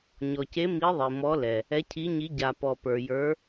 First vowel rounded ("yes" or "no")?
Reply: yes